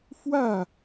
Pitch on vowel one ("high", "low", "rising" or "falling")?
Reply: falling